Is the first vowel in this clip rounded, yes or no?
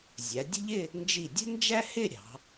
no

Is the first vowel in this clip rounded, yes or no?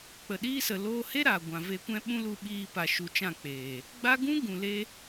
no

